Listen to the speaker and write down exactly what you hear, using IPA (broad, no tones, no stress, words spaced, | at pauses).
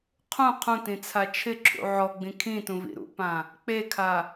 qʰũ qʰũtĩt͡sʰa t͡ʃʰɪǁʰṵ ʕɔɡ͡bĩ kʰĩtũvḭ ɾṵpã | k͡pekʰa